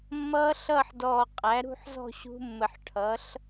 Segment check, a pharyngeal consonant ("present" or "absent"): present